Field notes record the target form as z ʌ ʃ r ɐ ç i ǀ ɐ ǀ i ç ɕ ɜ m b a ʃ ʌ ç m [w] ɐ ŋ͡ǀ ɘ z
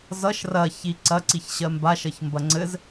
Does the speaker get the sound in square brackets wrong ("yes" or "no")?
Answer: yes